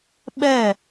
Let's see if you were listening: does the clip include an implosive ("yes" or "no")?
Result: yes